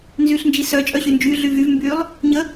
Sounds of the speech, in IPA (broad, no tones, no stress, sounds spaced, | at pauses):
n z y ɬ n d͡ʒ i s œ t͡ʃʼ œ ɕ y n d͡ʒ y ɮ y v y v m b y lˠ | ɲ ə